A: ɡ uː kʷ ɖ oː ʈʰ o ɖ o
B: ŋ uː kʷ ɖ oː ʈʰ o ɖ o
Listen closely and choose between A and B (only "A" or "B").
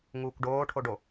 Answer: B